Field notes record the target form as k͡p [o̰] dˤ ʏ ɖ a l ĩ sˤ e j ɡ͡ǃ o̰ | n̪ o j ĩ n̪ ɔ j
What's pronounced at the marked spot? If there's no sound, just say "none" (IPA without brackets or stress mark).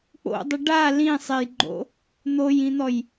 o̰